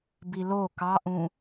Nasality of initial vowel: oral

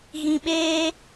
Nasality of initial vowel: nasal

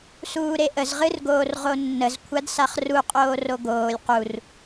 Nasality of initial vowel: oral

